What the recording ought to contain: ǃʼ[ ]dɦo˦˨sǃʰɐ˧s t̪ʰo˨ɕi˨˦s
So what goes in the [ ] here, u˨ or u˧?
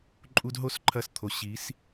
u˧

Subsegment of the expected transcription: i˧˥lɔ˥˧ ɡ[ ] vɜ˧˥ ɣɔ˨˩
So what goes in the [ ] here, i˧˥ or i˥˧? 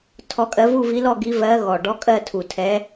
i˧˥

